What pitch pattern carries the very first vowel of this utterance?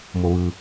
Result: low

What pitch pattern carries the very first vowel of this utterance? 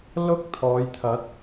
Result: high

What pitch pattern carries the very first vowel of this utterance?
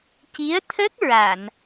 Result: rising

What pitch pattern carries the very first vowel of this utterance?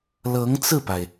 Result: rising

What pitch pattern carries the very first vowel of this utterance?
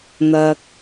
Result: low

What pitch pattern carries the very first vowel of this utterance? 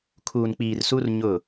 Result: low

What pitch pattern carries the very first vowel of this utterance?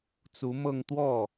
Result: rising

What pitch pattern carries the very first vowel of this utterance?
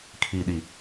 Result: low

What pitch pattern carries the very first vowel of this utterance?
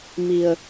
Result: low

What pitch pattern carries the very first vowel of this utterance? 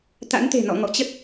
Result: rising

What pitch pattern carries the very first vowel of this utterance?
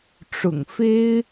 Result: low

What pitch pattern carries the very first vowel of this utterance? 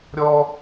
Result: high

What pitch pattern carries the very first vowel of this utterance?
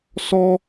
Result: high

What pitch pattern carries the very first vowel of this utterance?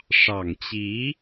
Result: low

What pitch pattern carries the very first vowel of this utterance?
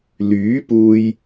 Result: rising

